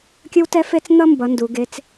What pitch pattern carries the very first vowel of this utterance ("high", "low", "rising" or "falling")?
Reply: high